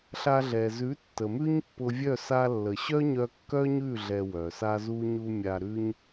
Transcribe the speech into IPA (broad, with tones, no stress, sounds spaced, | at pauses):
ɬ a˧ ɮ ɛ˨ z ʉ˨˦ tː ə˨ m ʉ˦ ɲ pː ʊ˧ vʲ œ˦˨ s a˧ lː ə˨ ɕ œ˦ ɲ œ˧ kː œ˦ ɲ ʉ˦˨ ɮ ɛ˧ w œ˨ s a˦ z u˦ ɲ u˧ mʲ a˧ ɾ ʉ˦ ɲ